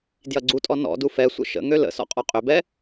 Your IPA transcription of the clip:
d j ɐ ɡ͡ǀ u tʼ ɔ n ɔ̰ d u f ɛ sʷ ə̰ ʃ ə̰ ŋ ø l ə̰ s ɔ̰ qʼ ɔ qʼ ø b ɛ

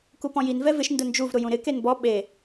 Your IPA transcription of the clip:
k u p ɔ̃ j i n v ɛ v ɪ ʃ n d ʊ n d͡ʒ u v ɾ ʊ j ũ ɾ ɪ k e n b ɔ ɓ e

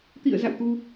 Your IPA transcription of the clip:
t̪ ḭ˧˨ ə̯ z a̰˧˨ w t̪ u˧

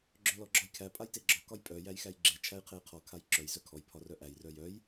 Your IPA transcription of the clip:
ɡ͡ǁ œ l ɔ ɡ͡ǁ ɒ j kʰ æ pʼ a j t e ɡ͡ǁ ɒ k ɒ j pʼ œ j æ j x æ j ɡ͡ǁ e t͡ʃʰ æ j qʰ e j qʰ ɔ kʰ a j ǁ œ j z œ kʰ ɔ j pʰ ɒ r œ ʔ æ j r œ j œ j

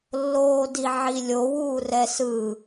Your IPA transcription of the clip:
lː oː d i ʕ i lʲ o w uː r ɛ s ɯ

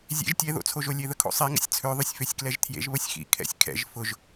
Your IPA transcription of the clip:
zʲ ḛ ʒ tʲ ɛ ð o̰ t͡sʰ o ʒ o lʲ e ð ə kʰ o̰ sˤ i ŋ ə̰ sʲ t͡sʰ ø ðˤ ʏ sʲ f ø sʲ k l ɛ ʒ tʰ j ḛ ʒ β ə sʲ x ḭ kʰ ɛ̰ sʲ kʰ ɛ̰ ʒ f ʊ ʒ

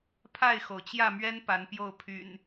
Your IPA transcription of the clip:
pʰ a˥˨ ɪ̯ x o˩ ʊ̯ t͡ɕ j ä˥˨ m ɥ ɛ˦ n p a˨˦ n p j o˥˨ ʊ̯ pʰ y̰˨˩ n

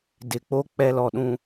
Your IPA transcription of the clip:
d ɪ˨ k͡p o˦ k͡p ɛ˦ l ɔ˨ ɗ ũ˦

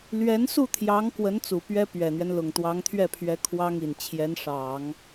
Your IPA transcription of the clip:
l ɥ ɛ˧˥ n s u˥˩ t̪ʰ j ɑ˧˥ ŋ k w ə˧˥ n t͡s u˨˩ p ɥ ɛ˥ p ɥ ɛ˨˩ n̪ ɥ ɛ˦ n l ʊ˨˩ ŋ t̪ w ɑ˧˥ ŋ t̪ʰ ɥ ɛ˥˩ pʰ ɥ ɛ˧˥ kʰ w ɑ˥ ŋ i˨˩ n t͡ɕʰ j ɛ˧˥ n ʂ ɑ˨˩˦ ŋ

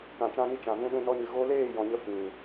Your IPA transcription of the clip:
k ã˨ t͡ʃ ã˧ n i˧ t͡ʃ ã˨ v ũ˧ ɗ ũ˧ n ɔ˧ ɲ ɨ˨ ɣ o˧ l eː˦˨ j ɔ̃˧ ɲ ə˦ f ĩ˨

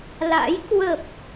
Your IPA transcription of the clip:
l a̰˧˥ j k w ə˨˩ p̚

